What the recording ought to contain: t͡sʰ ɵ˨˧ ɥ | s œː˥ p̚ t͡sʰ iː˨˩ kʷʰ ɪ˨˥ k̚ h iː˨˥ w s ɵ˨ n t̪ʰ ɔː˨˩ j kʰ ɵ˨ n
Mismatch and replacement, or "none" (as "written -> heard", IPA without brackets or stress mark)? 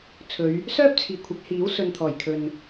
none